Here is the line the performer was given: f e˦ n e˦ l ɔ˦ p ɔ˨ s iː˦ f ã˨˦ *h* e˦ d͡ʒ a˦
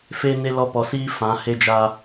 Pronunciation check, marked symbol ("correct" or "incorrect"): correct